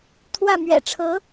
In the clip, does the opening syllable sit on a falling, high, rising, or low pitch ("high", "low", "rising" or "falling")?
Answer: falling